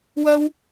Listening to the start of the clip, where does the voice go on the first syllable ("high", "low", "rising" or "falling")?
high